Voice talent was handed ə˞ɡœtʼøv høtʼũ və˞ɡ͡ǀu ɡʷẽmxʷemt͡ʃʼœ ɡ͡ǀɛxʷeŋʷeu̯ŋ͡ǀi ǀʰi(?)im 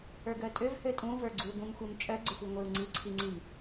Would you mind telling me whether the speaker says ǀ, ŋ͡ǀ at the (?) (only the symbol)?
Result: ŋ͡ǀ